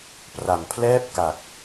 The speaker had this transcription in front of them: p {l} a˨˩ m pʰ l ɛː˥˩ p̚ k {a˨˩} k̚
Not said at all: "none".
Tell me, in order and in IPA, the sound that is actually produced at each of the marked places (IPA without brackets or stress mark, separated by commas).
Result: r, a˨˩